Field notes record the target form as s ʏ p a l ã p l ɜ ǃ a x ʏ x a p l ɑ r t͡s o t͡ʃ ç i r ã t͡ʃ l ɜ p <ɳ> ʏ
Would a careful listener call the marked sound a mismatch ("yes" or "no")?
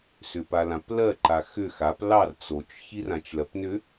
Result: yes